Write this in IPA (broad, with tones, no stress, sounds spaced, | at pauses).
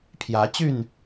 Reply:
pʰ j ä˨˦ t͡ɕ y˥˨ n